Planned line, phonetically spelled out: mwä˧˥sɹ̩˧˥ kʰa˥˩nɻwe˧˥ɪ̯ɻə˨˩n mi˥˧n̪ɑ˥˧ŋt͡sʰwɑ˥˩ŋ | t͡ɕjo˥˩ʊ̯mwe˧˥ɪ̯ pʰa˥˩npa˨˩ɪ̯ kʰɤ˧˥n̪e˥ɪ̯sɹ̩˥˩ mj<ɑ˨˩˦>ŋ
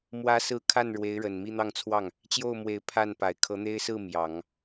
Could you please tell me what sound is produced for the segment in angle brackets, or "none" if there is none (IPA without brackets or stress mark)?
ɑ˨˩˦